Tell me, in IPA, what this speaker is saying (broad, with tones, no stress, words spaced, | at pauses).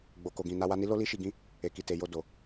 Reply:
ɡ͡bo˨ko˨ɡĩ˨ na˧wa˧ni˦lo˦ li˦ʃi˧ɡĩ˦ | e˨ki˨te˨ jo˧do˨